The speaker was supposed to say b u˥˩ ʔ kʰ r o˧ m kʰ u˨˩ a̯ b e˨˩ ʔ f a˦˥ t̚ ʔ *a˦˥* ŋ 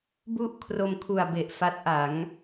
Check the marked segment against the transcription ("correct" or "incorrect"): incorrect